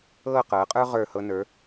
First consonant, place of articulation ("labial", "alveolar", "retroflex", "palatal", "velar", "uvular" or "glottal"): uvular